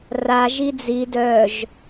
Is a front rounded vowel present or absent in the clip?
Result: present